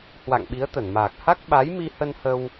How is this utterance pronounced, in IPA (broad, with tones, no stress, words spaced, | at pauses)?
hwa̰˧˨ŋɓi˨˦ə̯t̪ə˧˩nmaː˨˩k̚ ha˦˥k̚ɓa˨˦jmi˧hə˧n hə˧w